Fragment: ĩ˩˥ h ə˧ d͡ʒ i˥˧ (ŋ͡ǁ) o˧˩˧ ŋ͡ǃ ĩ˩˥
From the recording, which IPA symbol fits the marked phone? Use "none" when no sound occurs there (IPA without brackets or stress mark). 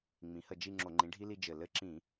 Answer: ŋ͡ǁ